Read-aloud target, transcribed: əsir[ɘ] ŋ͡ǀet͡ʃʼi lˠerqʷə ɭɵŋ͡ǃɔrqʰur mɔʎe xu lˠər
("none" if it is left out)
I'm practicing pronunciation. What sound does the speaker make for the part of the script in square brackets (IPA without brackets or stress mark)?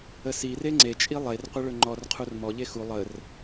e